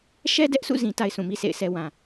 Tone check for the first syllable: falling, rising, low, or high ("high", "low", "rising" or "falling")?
high